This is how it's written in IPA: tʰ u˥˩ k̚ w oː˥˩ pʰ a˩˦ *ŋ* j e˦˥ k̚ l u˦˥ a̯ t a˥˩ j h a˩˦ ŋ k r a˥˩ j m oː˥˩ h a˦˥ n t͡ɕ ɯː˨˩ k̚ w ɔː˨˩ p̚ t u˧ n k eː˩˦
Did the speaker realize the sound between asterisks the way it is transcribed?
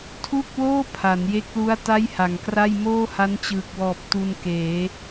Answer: no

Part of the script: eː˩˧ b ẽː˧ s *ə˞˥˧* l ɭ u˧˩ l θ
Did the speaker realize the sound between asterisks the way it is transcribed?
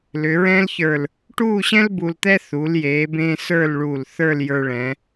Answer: yes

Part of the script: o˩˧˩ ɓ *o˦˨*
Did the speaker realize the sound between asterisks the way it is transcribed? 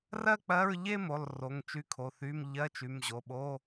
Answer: no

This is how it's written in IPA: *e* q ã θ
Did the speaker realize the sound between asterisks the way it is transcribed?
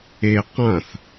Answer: yes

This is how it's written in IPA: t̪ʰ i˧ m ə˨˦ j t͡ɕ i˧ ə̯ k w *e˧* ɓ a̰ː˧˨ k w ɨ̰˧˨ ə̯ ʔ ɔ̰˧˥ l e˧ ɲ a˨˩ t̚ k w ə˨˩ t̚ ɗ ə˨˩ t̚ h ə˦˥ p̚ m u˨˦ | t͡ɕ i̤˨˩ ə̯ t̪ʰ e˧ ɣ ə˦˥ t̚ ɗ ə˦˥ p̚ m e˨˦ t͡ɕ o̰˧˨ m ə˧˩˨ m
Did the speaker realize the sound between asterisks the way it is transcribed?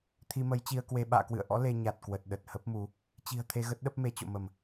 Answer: yes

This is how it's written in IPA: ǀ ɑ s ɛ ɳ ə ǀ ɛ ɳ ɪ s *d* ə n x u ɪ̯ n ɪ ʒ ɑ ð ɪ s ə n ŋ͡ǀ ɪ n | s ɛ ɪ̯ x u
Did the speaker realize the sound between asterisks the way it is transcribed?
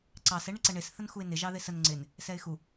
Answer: no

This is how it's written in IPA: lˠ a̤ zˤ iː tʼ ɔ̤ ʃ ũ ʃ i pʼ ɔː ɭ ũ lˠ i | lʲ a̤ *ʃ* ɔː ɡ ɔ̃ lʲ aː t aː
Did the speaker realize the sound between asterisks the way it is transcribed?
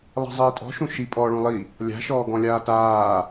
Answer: yes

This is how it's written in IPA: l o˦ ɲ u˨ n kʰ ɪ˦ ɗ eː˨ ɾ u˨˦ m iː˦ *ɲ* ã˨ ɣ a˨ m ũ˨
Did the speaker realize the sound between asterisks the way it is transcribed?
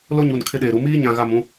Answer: yes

